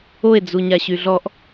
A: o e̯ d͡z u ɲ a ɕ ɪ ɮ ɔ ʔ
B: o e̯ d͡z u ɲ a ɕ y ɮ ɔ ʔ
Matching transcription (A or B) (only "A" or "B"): B